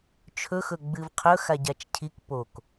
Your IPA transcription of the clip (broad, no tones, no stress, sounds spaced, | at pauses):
t͡ʃʰ ɵ x ɵ ɡ͡b ɨ v qʰ ɵ x a ɟ a t͡ʃ cʰ i k p o k